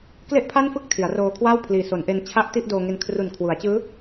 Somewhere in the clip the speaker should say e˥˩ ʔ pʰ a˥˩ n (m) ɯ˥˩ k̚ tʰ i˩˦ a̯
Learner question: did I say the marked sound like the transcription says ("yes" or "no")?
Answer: no